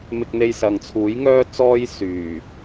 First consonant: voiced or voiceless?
voiced